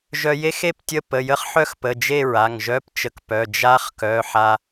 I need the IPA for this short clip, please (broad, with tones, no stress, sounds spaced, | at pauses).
ʒ œ˧ j e˦˥ x e˥˧ p tʲ ə˧˥˧ p ə˩˧˩ j ə˦˥ χ ħ œ˥˧ x p ə˩˧˩ d͡ʒ e˥˧ ɹ a˩˧˩ ŋ ʒ œ˧˥˧ p t͡ʃ ə˧ k p œ˩˧˩ d͡ʒ a˦˥ χ k œ˩˧˩ ħ a˧